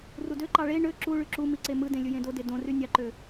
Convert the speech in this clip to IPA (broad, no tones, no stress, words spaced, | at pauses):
rudøǃɑ ɭe ɳø ǁuɭy ǁumi ǀemɯdẽ lʲɯjẽdode dõry nʲɑǃø